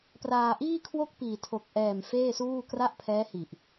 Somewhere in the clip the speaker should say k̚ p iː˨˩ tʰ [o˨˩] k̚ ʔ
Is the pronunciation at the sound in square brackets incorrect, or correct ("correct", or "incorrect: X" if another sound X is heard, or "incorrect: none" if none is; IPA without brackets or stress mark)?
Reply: correct